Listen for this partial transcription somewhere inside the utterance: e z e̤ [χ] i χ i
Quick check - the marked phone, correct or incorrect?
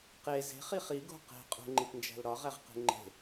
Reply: correct